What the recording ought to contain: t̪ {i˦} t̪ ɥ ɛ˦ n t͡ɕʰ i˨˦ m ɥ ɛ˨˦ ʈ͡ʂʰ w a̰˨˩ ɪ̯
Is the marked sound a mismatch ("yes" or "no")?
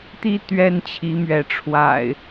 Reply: no